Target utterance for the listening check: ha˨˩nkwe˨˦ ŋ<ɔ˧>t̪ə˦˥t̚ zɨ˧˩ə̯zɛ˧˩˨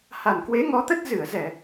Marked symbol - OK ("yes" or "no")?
no